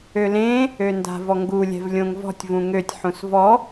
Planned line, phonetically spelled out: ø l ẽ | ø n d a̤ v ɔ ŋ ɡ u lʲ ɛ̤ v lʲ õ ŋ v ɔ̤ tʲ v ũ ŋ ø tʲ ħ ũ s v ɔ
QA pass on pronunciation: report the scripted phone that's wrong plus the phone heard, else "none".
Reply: none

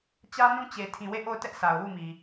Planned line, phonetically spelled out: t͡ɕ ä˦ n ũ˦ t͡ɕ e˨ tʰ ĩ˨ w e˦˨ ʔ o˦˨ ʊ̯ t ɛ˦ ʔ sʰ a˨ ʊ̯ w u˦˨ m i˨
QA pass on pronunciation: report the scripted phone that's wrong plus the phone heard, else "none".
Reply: none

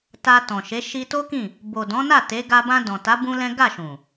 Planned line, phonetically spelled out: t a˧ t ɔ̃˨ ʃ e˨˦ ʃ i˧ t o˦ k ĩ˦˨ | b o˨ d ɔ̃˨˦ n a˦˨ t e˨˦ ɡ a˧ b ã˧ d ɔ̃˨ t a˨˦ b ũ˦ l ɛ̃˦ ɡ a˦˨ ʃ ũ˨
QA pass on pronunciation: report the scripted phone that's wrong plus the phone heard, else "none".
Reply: none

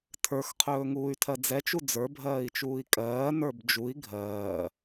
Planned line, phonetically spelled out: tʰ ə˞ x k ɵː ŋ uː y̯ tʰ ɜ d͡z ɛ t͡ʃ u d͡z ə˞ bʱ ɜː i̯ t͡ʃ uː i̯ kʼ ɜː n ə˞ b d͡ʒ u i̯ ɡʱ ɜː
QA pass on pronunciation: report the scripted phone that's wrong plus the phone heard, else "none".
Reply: k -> qʰ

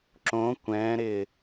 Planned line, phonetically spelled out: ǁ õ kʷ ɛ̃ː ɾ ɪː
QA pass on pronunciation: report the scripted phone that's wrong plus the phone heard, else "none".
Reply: none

